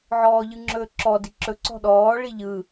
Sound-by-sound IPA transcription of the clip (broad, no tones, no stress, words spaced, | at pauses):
ʕɔːʎɯŋ͡ǁɵːǁɔ diǁɵ ǀɔ̤ɗɔː ɭiʎɯː